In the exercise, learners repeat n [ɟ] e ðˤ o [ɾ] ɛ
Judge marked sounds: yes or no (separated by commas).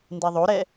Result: no, yes